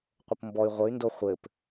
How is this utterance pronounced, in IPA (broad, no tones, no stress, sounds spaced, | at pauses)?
qʷ ə p m b ɔ y̯ ʁʷ ə y̯ n d o χʷ ɘ p